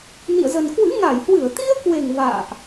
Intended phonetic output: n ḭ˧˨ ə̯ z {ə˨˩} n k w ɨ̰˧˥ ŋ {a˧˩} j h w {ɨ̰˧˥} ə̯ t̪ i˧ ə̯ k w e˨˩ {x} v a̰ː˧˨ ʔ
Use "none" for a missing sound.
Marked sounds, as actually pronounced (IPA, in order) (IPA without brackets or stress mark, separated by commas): ə˨˩, a˧˩, ɨ˧˩, ŋ